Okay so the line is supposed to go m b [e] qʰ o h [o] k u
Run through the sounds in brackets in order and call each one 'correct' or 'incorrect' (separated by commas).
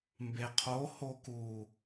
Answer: correct, correct